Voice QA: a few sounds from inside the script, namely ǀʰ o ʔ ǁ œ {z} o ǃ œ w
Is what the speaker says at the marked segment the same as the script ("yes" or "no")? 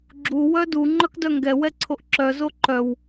yes